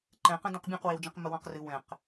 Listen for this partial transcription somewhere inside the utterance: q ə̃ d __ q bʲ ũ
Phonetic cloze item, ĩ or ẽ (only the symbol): ẽ